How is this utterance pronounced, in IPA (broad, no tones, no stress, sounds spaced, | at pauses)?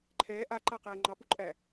ǃʰ ɛː ʔ a ǃ a q ɛː ŋ͡ǃ ɑ p u ǃʼ æ